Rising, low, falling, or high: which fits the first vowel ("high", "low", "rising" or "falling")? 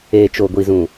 low